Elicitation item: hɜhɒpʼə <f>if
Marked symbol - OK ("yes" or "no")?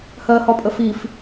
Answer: yes